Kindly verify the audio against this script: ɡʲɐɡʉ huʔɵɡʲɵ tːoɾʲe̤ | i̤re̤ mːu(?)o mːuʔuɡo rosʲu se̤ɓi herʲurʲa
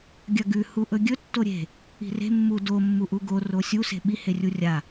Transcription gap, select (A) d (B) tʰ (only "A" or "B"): A